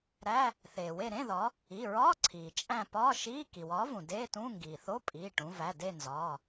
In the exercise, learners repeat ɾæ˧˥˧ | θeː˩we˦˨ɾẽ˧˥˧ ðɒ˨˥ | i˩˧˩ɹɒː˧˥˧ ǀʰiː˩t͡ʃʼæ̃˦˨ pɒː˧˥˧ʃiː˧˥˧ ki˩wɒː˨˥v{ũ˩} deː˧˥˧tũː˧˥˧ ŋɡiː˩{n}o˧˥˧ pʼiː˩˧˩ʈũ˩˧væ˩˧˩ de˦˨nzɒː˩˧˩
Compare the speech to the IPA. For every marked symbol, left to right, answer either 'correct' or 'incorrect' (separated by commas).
correct, incorrect